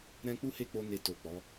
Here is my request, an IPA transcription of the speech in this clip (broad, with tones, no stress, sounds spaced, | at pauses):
ɾ ɛ̃˦ k͡p u˦ h e˦˨ k͡p o˧ n e˧ t o˨ k͡p ɔ˨˦